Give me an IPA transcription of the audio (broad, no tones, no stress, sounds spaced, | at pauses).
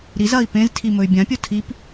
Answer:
ɾ i z ɐ i̯ p ẽ z tʰ i m ɵ y̯ bʲ ã pʲ o tʰ i p